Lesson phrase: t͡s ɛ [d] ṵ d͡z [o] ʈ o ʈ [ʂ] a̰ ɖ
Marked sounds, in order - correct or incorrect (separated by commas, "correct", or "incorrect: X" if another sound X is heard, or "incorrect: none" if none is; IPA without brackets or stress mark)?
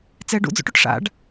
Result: incorrect: ɖ, incorrect: o̰, correct